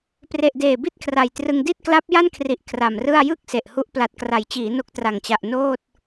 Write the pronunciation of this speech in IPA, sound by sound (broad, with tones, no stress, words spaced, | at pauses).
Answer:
pre˨˩ʔ deː˨˩bi˥˩t̚kʰra˨˩jtrɯ˧ŋ di˥˩t̚kla˦˥p̚ ja˥˩nkʰri˨˩ʔ kʰra˨˩mrɯ˥˩a̯ jɯ˥˩k̚ se˨˩ʔhu˦˥ʔ pla˨˩t̚kra˩˦jt͡ɕiː˩˦ no˦˥k̚tra˨˩ŋt͡ɕa˨˩ʔ noː˥˩t̚